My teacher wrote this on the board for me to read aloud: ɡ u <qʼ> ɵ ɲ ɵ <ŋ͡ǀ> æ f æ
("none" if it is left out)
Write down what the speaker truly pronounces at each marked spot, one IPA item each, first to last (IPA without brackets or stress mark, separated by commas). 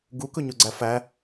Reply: k, ɡ͡ǀ